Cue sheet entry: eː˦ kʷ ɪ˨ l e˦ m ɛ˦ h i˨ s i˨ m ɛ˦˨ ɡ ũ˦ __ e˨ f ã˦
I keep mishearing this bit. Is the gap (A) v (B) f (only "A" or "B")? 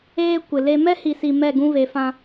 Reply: A